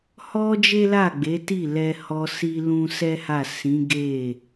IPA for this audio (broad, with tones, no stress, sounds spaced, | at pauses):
h ɔ˧ d͡ʒ e˦ l a˦˨ ɡ͡b e˨˦ t i˦˨ l ɛ˧ h ɔ˧ s i˦ l ũ˦ s ɛ˦ h a˦˨ s ĩ˨˦ ɡ e˦˨